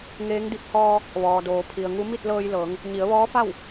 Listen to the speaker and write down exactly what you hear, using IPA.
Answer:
ŋeː˧˥ŋdi˧˥p̚ hɔː˧ | ʋɔː˩doː˩ pʰi˩ə̯ŋu˧˥ mi˥˨t̚lɤː˧jlɤː˩˧ŋ | ɲi˩˧ə̯ʋɔː˧˥fa˥˨w

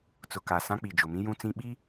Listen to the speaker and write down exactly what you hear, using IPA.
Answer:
t͡sʊ˨ka˨ sã˦k͡pi˨d͡ʒʊ˨mĩ˦ jũ˦t͡sĩ˦ ɓi˦

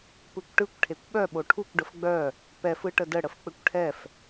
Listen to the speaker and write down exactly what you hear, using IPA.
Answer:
pɯkʷʈɯkʷ ʈʰekʷɓœ ɓoʈʰukʷ ɖəfɡ͡bœ | pɛf ɯʈədə ɽəfk͡pɘkʷʈʰɛf

